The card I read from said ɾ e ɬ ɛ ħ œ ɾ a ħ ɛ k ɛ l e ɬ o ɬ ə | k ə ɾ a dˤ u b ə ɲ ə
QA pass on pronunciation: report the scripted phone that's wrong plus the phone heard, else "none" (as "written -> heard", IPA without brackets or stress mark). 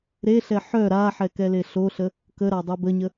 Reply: none